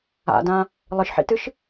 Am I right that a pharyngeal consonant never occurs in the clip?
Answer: no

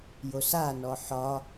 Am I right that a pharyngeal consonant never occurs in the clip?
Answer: no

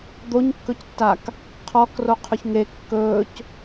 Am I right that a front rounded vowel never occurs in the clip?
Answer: yes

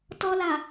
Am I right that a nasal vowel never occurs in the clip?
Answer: yes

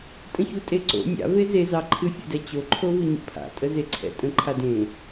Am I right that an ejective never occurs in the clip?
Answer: no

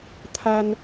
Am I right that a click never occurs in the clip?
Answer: yes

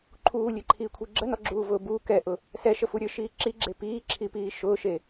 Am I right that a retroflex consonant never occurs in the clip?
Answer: yes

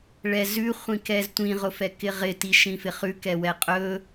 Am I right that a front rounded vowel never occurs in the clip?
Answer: yes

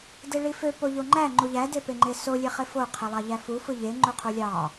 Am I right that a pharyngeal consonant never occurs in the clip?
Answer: yes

